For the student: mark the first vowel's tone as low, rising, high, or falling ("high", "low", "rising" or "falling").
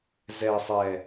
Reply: low